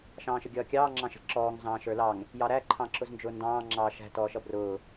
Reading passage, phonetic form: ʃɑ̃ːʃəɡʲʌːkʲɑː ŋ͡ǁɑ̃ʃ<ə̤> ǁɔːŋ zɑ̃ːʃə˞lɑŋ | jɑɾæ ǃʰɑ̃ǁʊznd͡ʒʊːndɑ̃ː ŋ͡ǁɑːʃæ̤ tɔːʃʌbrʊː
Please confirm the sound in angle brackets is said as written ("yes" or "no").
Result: yes